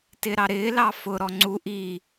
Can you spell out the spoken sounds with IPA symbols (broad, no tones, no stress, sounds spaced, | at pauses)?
t ɪ ɾ ɑ ɾ ɪː l ɑ f ʊ ɾ ɔ ŋ͡ǀ u ʔ i